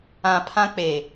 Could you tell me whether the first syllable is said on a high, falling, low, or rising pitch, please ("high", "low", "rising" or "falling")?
low